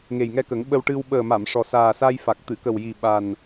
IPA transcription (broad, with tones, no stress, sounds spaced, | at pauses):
ŋ e˨˩ j ŋ ɛ˧ k ə˨˩˦ ŋ ɓ ə˧ w ʈ ɨ˧ w ɓ əː˨˩ m a˨˩˨ m ʂ ɔ˨˩ s aː˨˩ s a˧ j f a˨˩ k̚ t̪ ɨ˨˩˨ k ə˨˩ w j i˨˩ ɓ a˨˩ n